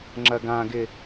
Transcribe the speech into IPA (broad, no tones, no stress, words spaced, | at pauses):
ŋ͡ǁɐɡãɡɪ